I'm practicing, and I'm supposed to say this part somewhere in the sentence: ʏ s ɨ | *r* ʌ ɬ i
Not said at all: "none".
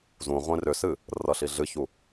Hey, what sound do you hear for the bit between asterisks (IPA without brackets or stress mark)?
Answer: r